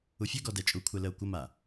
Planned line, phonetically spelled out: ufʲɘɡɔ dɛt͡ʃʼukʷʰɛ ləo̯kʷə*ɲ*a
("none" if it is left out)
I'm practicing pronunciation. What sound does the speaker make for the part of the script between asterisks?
m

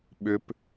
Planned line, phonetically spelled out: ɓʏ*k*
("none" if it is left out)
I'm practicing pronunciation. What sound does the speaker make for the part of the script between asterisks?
p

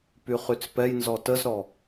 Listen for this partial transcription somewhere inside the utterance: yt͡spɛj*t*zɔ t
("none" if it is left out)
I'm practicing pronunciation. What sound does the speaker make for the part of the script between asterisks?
n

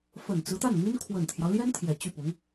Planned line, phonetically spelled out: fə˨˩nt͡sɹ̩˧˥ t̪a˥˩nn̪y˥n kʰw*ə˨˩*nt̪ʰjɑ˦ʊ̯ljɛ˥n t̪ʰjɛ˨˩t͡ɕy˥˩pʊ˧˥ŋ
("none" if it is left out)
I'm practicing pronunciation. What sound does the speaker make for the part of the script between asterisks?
ə˨˩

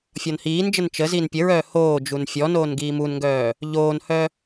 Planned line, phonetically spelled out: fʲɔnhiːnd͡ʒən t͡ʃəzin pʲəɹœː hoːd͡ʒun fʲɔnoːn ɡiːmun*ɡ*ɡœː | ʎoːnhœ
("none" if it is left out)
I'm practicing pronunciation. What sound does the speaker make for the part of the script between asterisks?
ŋ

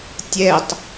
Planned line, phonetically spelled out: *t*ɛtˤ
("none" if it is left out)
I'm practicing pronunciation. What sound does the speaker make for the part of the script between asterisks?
tʲ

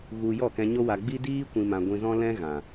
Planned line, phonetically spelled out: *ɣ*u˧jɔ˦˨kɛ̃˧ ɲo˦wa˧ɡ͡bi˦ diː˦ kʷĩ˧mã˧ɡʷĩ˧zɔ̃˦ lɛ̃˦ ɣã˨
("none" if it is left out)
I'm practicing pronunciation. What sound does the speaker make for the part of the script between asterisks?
ɣ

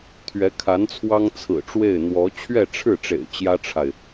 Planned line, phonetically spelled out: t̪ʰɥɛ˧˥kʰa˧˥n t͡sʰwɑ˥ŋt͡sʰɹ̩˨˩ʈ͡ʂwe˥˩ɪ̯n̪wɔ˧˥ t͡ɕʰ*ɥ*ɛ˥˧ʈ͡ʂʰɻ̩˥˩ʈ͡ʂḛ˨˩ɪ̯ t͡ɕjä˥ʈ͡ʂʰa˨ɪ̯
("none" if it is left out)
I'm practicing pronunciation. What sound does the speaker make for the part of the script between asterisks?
ɥ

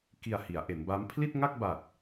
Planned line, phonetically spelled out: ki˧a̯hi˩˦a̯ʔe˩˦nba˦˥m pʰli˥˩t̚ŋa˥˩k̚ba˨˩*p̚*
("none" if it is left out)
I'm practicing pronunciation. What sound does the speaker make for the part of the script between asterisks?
t̚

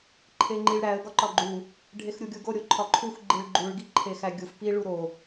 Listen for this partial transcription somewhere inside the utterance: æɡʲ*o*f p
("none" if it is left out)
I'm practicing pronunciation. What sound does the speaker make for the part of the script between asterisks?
u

